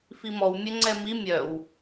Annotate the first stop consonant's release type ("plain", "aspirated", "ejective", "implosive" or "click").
click